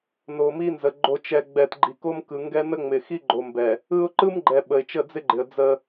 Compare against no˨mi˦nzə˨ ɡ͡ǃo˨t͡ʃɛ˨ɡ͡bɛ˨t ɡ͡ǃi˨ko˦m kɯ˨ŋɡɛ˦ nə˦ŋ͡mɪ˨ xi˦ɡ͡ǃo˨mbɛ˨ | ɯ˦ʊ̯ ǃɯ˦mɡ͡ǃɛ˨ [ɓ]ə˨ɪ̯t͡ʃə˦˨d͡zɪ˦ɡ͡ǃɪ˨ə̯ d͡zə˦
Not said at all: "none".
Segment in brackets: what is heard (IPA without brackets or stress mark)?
ɓ